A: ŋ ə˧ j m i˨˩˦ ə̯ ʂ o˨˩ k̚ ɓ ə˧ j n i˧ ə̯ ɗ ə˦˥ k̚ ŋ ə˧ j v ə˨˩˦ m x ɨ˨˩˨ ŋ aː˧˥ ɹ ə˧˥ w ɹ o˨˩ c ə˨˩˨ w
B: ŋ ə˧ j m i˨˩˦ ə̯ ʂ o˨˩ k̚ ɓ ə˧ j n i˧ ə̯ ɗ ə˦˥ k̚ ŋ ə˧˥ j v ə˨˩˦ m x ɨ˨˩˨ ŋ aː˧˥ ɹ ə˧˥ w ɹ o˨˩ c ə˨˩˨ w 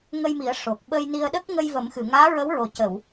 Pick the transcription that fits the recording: A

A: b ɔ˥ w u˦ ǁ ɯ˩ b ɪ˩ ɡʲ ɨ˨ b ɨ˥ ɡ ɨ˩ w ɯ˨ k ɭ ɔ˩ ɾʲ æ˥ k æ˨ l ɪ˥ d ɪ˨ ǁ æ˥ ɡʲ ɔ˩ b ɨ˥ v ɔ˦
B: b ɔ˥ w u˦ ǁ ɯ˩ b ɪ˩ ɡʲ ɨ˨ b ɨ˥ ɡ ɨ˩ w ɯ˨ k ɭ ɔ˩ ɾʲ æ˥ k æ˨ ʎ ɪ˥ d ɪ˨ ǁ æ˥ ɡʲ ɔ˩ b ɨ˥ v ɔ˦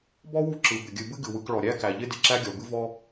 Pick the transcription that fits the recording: B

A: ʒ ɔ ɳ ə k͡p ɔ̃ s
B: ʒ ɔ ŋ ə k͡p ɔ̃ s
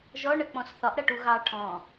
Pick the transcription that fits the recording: A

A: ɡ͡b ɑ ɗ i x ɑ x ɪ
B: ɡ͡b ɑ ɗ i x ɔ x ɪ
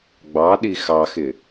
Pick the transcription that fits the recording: A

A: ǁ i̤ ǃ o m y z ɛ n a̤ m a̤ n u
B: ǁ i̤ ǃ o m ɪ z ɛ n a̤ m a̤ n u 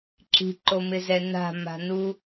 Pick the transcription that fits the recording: B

